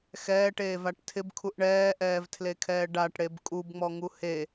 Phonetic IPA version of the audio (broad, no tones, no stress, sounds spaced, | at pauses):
x ɛː ʈ eː v a ʈ tʰ ɪ b kʰ u ʔ ɳ ɛː ʔ ɛː v tʰ l e kʰ ɛː ɖ a ʈ ɽ e b kʼ u b ŋ͡m ɔ ŋ u h e